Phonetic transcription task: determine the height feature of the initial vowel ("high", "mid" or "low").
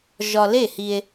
low